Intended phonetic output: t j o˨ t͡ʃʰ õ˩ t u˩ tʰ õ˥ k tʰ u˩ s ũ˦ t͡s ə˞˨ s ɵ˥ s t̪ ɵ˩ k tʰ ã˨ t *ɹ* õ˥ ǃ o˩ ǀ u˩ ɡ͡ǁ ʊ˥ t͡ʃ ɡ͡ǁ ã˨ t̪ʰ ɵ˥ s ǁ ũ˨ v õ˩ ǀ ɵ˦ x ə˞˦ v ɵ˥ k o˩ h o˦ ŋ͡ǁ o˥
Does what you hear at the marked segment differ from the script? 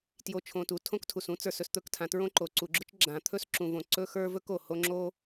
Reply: no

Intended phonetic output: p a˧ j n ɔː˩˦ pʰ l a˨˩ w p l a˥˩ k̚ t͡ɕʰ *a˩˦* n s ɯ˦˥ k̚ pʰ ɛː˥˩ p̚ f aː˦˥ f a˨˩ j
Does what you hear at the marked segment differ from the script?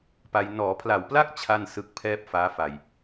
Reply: yes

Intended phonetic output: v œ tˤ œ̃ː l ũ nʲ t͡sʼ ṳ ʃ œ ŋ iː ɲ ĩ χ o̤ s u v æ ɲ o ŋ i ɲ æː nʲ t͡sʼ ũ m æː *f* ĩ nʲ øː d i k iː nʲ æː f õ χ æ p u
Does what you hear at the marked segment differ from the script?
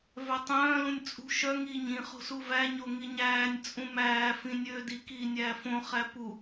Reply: no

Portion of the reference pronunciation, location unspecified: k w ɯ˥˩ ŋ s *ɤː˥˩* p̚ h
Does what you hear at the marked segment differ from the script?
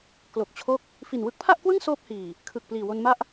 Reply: yes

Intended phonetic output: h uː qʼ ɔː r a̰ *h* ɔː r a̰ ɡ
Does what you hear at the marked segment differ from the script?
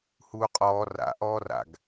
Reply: yes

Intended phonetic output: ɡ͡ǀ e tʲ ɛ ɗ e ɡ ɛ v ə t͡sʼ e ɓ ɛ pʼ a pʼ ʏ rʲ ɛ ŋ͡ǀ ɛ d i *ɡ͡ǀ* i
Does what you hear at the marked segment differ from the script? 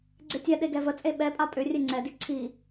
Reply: yes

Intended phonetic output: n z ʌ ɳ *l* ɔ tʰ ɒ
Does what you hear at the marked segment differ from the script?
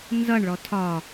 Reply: yes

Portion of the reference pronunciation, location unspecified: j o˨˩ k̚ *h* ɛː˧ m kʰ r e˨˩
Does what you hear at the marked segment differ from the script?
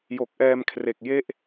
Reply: yes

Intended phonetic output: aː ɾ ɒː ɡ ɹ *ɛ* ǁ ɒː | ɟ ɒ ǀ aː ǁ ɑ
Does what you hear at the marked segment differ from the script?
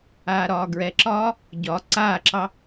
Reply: no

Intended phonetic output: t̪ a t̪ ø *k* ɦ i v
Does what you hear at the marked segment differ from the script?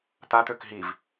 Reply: no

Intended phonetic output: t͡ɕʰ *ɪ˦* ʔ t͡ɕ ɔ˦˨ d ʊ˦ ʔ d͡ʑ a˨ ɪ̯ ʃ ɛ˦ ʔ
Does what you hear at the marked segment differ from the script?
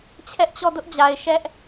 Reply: yes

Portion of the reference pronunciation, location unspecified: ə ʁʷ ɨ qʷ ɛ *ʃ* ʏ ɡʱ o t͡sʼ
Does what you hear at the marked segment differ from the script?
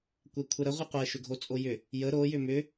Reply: no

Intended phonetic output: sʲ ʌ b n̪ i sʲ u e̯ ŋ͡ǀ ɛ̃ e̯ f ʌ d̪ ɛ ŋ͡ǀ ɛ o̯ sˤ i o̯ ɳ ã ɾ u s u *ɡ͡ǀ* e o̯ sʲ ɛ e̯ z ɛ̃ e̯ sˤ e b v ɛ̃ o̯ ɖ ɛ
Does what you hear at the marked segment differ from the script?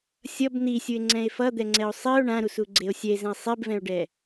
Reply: no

